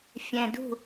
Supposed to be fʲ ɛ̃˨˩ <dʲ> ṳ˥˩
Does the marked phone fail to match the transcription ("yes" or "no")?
yes